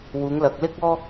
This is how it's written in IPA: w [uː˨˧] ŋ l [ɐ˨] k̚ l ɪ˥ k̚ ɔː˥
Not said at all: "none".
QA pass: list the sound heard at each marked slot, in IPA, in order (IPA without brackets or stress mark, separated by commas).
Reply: uː˨˧, ɐ˨